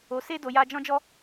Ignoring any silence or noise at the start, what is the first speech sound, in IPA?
o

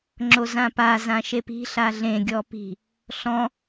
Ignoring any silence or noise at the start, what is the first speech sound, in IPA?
ŋ͡ǁ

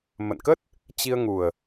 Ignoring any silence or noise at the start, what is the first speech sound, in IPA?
m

